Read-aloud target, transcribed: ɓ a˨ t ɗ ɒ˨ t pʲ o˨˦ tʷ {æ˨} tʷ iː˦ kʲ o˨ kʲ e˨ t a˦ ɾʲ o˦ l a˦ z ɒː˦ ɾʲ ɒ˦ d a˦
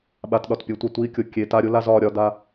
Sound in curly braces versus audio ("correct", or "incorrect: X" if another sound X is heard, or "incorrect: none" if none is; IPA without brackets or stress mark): incorrect: a˨